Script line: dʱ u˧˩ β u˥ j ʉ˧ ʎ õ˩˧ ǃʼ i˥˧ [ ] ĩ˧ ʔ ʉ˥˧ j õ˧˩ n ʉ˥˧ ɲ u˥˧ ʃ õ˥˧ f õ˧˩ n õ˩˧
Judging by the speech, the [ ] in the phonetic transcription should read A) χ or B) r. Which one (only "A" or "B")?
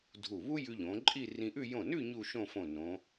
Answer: B